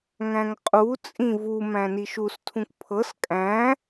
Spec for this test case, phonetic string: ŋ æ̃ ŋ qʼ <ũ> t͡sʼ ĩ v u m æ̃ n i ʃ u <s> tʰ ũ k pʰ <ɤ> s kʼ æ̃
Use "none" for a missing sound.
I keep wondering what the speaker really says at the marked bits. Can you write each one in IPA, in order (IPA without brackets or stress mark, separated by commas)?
u, s, ɤ